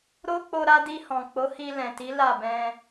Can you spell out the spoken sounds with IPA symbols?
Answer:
ɾ o˦ k͡p o˧ ɾ a˧ d i˧ h ɔ̃˨ k͡p o˨˦ h i˧ l ɛ̃˨ t i˨˦ l a˦˨ b ɛ̃˧

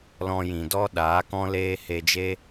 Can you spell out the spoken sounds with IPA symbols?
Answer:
l ɔ̃˧ j ĩ˨ d ɔ˦ ɗ aː˨˦ k ɔ̃˦ l eː˦ h e˧ d͡ʒ e˦

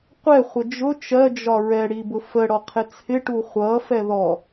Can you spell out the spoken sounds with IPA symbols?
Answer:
qʷ ɛ χʷ ə d͡ʒ ʊ t͡ʃ ɜ d͡ʒ ɒ ɹ ɛ ɽ i b ʊ f ə ɽ ɔ qʰ ɪ t͡sʰ ɪ ʈ u χʷ ʌ f ɛ ð ɔ

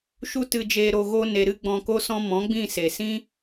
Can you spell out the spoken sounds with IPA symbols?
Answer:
ʃ u˧ t ɨ˨ d͡ʒ eː˨ ɾ o˨ ɣ o˧ n e˨ ɾ ɨ˧ ɡ͡b ɔ̃˨ k o˧ s ɔ̃˧ m ɔ̃˨˦ ɡ͡b ĩ˦˨ s e˨ s ĩ˦

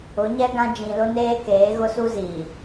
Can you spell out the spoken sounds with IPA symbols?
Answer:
ʊ˨˦ ɲ ɛ˦ ɡ ã˦ d͡ʒ ĩ˨ l ʊ˦ n eː˦ k eː˨˦ ɣ ʊ˦ s u˦ z iː˨

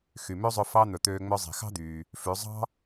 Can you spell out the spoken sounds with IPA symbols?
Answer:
x y˩ m ø˥ zˤ ɵ˧ f ɑ˥ n̪ ɵ˩ t̪ øː˧ ŋ͡m œ˧ zˤ i̤˩ x ɑ̤˥ d̪ yː˩ | f ʉ˩˧ zˤ ɑ̤˥

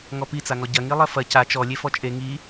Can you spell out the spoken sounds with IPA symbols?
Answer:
ŋ ɔ p i t͡s a ŋ ɔ ɟ ɐ ŋ i lˠ ɐ f ɐ c a t͡ʃ ɔ lʲ e f ɔ t͡ʃʼ e ŋ i

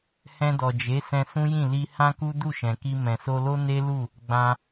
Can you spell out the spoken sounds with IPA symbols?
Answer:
h ɛ̃˧ d ɔ˨ d͡ʒ e˨˦ s ɛ̃˧ s ũ˦ j ĩ˦˨ l i˧ h ã˦ k u˦ d u˦˨ ʃ ɛ̃˨ k i˧ m ɛ̃˨ s o˧ l o˦ n e˦ l u˦˨ | ɡ͡b ã˧

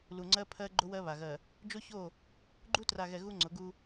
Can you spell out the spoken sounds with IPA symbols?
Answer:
l u˨ ŋ͡ǀ ɜ˦ pʰ ɜ˦ ɡ͡ǃ ʊ˦ w ɜ˦ β a˨ ɣ ɜ˨ | d͡ʒ o˦ ç o˦˨ | ɡ͡ǃ u˦ t r a˨ ɣ ɛ˨ ɣ u˦ ŋ͡ǀ ʊ˨˦ ɡ u˦

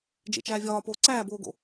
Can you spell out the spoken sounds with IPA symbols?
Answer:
d͡ʒ ḛ t͡ʃ æː vʲ ɒː p oː ǀ æː b oː ɡ o̰

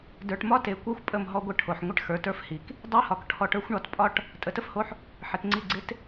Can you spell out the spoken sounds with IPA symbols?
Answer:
d ə˞˨ ʈ m ɒ˦ t e˨ kʷ ə˞˦ xʷ pʼ ə˦˨ m ɦ ɔ˦ ɡʷ ə˦ ʈʰ o˨ ħ ŋʷ ɪ˦ ʈ x ə˞˨ t ə˞˦ f h i˨ k | dˤ e˦ h ɒ˨ k ʈʰ ɔ˨ ʈ ə˞˦ xʷ ɳ ɒ˨˦ t pʼ ɒ˦ ʈ | tʼ ə˨ t ə˦ f h o˦ ħ | ħ ɪ˨ t ŋ͡ǀ i˦˨ ɡ͡ǀ ɪ˦ t

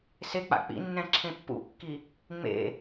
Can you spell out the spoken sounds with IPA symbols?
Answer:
s e k͡p a̰ k͡p ḭ nː ɛ̃ ǁʰ ẽ pː ṵ kː i | ŋ͡m ḛ

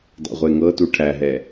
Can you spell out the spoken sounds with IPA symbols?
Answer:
dˤ ḛ ʁʷ e ŋ ɤ t u ʈʰ æ ɦ ɛ

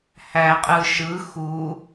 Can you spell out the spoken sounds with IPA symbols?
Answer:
h æ qʼ ɯ ʃ ɯ x u

